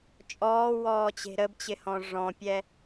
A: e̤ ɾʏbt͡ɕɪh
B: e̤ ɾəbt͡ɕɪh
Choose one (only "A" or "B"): B